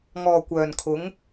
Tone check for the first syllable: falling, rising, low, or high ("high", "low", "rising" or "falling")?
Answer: low